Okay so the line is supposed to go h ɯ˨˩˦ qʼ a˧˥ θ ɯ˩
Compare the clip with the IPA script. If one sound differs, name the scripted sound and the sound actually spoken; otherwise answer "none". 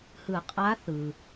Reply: none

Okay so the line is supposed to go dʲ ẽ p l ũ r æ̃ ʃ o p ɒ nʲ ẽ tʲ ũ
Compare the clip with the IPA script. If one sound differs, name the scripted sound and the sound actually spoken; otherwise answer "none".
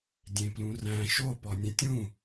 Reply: none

